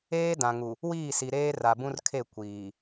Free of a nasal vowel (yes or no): no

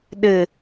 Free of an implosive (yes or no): no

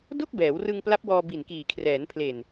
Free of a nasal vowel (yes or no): yes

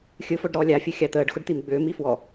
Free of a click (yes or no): yes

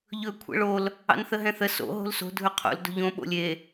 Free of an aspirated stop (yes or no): no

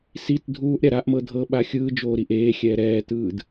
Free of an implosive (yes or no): no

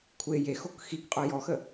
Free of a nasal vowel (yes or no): yes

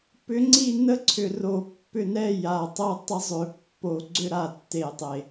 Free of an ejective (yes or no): yes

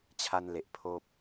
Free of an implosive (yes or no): yes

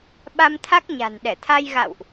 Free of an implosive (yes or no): no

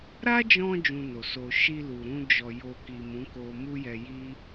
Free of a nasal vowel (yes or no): no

